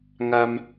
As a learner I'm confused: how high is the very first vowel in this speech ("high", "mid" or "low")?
low